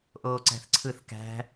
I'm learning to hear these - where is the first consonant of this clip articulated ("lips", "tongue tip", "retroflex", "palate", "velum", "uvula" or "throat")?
throat